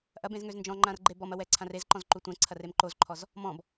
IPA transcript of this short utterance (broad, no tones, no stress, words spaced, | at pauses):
ʔɐbẽz ŋøznd͡ʒɔ̃ŋ͡ǃãr ɡ͡ǃebɔmɐ wɛǀʰãrezǃɔ̃z ǃutʷɛ̃ǀʰɐr emǃozǃʰɔz | mɔ̃b